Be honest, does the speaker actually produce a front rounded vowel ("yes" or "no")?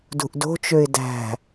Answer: yes